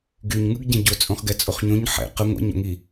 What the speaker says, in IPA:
ɡyɲ ŋɯɡɟɛ̃ɟot͡sʼõχ ɡɛt͡sʼoχɲõɲ ħɛ̰ qə ŋʷa̰ɲo̰ŋi

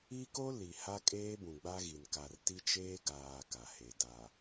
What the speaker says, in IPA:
i˦ko˦ li˨ha˦kʼeː˦ bũ˨ɡ͡ba˦ɣi˨n ka˨rti˦ t͡ʃeː˦ɡaː˨ ka˨he˨ da˨

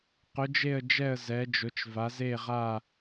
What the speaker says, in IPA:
qʊ˧˥d͡ʒe˥˧ə̯d͡ʒɛ˥˧ə̯ zɛ˧˥d͡ʒʊ˧˥t͡ʃva˧˥z e˥˧ʁa˥˧

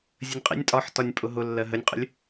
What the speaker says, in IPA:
zʲənʲqʼḭnʲ tʼɒħ tɒnʲpʼʊɦʊ lːɜɦənʲqʼə̰lʲ

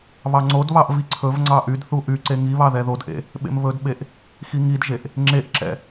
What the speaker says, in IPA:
βɑŋ͡ǀodβɑʔ viǀʰɵvŋ͡ǀɑ ʔydθu ʔyǀe ŋiβɑ ðɛðodʔḛ | ɓḛmβɵdɓeʔ | xiŋidʒeʔ | ŋ͡ǁeʔǁɛ̰

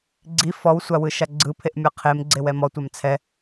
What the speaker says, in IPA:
ɡ͡ǀi fɔwsʷa wɯʃaɡ͡ǀɯpʰeʔ mʲɤqʰemɡ͡ǀew ɛmɔtʷam t͡sʰɛ

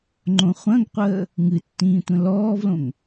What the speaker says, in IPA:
ŋ͡ǃõχʷə̃ɡqʷəː | ŋɨtːĩː tʷə̃lɔːvlõŋ

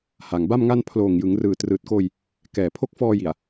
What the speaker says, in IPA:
ha˨˩ŋba˥˩mŋa˥˩n pʰloː˨˩ŋjɯ˩˦ŋ rɯː˨˩trɯː˨˩t̚koː˧j | kɛː˨˩pʰo˦˥k̚fɔː˧ji˨˩a̯

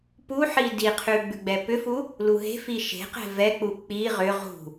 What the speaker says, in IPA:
puħi diqʰʉ ɡ͡bʉɡ͡bɛpʏfu | luɦe̤fi ʃe̤qɛ̤ vɛk͡pu k͡pi ʁʏ ʁṳ

